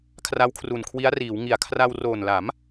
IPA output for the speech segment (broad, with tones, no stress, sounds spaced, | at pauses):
kʰ r a˦˥ w kʰ r u˨˩ n kʰ w i˦˥ a̯ r iː˩˦ w ŋ i˨˩ a̯ kʰ r a˧ w r oː˨˩ n l a˩˦ m